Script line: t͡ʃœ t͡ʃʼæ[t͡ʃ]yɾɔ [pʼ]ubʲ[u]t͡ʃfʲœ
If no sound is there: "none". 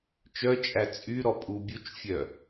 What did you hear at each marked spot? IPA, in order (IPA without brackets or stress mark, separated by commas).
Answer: t͡sʼ, pʼ, u